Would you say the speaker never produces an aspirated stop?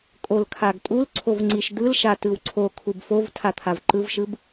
no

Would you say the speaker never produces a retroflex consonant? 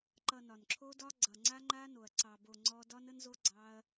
yes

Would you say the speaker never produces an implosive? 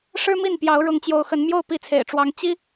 yes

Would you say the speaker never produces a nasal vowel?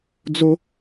yes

